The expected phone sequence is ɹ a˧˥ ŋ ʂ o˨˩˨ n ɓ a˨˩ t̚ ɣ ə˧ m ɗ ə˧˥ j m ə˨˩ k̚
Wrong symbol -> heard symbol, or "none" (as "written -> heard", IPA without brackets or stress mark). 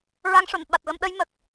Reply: none